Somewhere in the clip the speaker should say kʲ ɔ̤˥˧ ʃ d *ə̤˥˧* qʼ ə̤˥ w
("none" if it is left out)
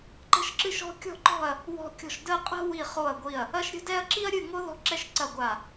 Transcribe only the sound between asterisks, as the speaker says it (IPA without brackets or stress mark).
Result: ə˥˧